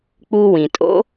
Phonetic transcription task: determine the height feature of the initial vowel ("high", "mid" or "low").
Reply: high